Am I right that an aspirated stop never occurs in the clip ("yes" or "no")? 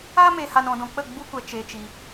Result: yes